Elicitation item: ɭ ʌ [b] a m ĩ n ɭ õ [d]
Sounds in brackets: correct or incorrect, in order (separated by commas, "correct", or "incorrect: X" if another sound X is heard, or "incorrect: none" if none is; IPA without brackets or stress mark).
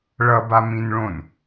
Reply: correct, incorrect: n